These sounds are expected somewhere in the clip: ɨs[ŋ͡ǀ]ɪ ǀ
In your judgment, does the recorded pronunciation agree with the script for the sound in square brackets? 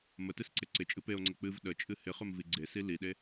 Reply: no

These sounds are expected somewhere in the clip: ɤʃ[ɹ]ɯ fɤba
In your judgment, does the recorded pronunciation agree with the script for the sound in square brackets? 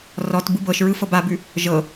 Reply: yes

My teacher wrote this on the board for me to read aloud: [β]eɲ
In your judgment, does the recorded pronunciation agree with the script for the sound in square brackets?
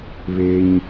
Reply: yes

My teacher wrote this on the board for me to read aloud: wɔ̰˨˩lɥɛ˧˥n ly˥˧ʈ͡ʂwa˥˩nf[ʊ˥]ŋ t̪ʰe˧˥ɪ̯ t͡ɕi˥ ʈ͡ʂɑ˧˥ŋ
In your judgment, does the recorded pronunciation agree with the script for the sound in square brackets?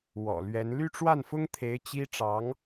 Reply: yes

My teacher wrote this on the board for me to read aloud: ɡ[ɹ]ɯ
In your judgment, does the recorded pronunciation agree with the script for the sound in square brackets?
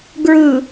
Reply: yes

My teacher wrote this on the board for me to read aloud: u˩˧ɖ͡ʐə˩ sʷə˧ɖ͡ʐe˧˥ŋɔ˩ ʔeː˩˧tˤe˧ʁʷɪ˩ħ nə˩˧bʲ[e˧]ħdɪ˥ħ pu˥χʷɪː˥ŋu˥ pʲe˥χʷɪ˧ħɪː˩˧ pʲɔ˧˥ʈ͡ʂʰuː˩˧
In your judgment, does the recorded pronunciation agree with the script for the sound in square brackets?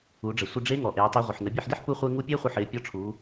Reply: yes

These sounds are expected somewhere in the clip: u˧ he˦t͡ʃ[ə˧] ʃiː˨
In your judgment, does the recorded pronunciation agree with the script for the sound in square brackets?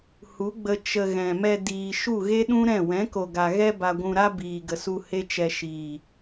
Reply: no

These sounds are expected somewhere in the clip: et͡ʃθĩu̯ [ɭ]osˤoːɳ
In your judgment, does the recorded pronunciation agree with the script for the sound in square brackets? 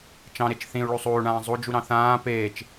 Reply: yes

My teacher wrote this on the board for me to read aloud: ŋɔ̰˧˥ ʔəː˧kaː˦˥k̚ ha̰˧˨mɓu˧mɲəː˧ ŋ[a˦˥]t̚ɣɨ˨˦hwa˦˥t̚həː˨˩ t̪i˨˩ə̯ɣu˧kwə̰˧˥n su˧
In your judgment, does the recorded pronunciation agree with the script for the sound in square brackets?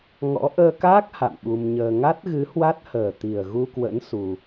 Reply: yes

